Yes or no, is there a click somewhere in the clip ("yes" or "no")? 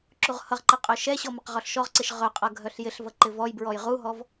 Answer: yes